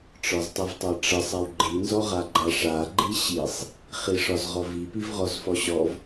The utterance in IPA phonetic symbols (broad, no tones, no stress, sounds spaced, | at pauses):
ʈ͡ʂ ɒ z tˤ i v tˤ a ʈ͡ʂ ə sˤ a w ɡ͡ǃ i n z ɔ ʁ a ɡ͡ǃ a ʂ a ɡ͡ǃ i ɕ i sˤ | χ i ʂ ɒ z ʁ ɔ v i p i v ʁ ɔ z f ɔ ɕ ɔ v